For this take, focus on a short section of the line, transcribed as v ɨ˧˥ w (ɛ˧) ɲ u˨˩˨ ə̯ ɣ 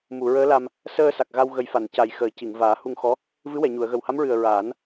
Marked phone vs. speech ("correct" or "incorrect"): incorrect